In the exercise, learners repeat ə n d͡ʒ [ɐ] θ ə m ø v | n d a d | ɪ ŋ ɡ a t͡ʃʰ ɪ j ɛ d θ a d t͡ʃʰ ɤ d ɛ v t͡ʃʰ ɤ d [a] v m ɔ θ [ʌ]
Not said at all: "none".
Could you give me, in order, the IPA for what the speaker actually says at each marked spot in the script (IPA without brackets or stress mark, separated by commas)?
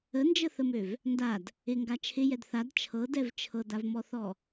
ə, a, ɔ